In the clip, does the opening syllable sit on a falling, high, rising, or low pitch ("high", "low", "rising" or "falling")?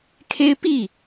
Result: high